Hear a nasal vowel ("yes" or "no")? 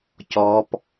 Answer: no